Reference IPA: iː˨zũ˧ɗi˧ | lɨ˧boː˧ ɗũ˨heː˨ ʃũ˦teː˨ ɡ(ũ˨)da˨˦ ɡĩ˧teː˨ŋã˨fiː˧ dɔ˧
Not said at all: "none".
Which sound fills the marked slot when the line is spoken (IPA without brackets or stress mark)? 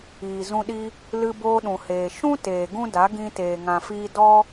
ũ˦